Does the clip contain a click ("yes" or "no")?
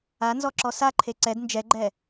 yes